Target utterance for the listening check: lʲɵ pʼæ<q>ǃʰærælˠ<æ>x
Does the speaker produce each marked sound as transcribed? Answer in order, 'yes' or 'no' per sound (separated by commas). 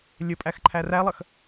no, no